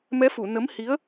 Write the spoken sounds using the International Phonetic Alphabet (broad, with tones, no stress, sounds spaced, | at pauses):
m ɛ˧˥ f u˨˩˨ n ə˧˥ m h i˧˥ ə̯